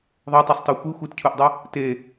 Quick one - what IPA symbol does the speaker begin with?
ðˤ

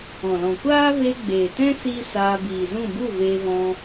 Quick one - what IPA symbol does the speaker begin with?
ɔ̃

